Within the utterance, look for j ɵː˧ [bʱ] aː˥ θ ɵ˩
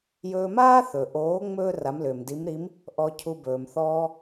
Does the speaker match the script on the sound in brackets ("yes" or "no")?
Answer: no